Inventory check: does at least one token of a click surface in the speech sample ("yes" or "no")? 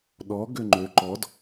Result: yes